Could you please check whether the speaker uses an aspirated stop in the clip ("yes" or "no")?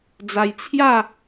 yes